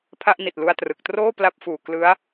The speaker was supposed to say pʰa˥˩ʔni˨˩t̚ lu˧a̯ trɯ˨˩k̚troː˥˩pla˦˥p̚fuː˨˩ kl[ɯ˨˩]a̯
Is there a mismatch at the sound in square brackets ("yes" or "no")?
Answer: yes